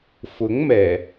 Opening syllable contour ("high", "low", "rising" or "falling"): rising